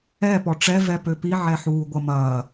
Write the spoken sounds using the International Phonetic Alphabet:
ɛ pɔʈ͡ʂɛ vɛpøpi ʕɛħuːɡʷɐmɐː

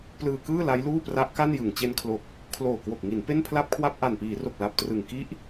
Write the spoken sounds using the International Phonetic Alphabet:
plɯː˧kɯː˥˩ la˦˥jluː˥˩pra˦˥ʔ ka˥˩njɯ˨˩ŋ t͡ɕe˧nkʰlo˨˩k̚ | kʰloː˨˩kwo˨˩k̚ŋi˩˦n pe˥˩npʰla˥˩p̚kʰwa˥˩p̚ ʔa˨˩npiː˩˦ro˨˩k̚ la˨˩p̚trɯ˨˩ŋ ki˦˥ʔ

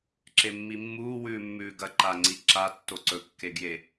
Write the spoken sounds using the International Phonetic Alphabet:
ǁemːimːuː wʉːmːʉːɡɐ ǃaŋ͡ǀiǁa tːoǀɵ kːeɡje

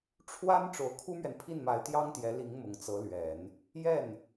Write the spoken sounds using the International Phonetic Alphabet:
ʈ͡ʂʰwa˥n ʈ͡ʂo˧˥ʊ̯kʰu˥mɥɛ˨n pʰi˥˩nma˧˥ɪ̯t̪jɑ˥ŋt̪jɛ˧˥ li˧˥ŋmʊ˨˩ŋt͡sɤ˧˥lɥɛ˨˩˦n | jɛ˥˩n

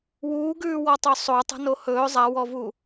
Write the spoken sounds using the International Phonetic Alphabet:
wuːɡʉːwɔ tˤɵsˤo tˤə̤nohɵː zˤawɔvu

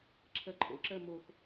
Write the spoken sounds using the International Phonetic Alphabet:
ǁʰɜǃʰo̰ ǁɜmox

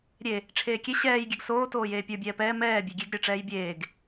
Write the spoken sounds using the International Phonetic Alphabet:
ɾʲe | ʈ͡ʂʰeːkʲe ɕɛːj ɡʲɛɡsoː toːjeːpʲə˞ bʲɛːpɛː mɛː bʲeɡʲeɡ ɾʲə˞ʈ͡ʂɛːjbʲeːɡ

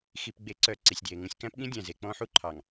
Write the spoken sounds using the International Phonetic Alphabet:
xi˨pɡ͡be˨˦ǀœ˨ ǀi˨sʲdje˨ŋũ˦sʲ kæ̃˦pɠĩ˦ dʲæ̃˨ze˨ k͡pɔ̃˦ħu˦ǃʰɑ˨ŋ

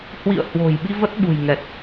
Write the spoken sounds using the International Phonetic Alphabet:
hwḭ˧˨ə̯ hwo̤˨˩j ɓi˧və˦˥t̚ɓṳ˨˩j ŋɛ˨˩t̚

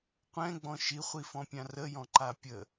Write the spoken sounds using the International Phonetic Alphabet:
qʷɛ̃ɡ͡bɔ̃ ʃiχʷifɔ̃pʲã rəjɔ̃ǃa pʲə

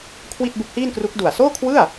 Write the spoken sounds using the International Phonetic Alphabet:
kʰwi˥˩t̚bu˦˥k̚hiː˥˩nkru˦˥k̚ du˨˩a̯soː˥˩kʰwɯ˥˩a̯

